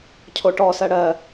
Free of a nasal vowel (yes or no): yes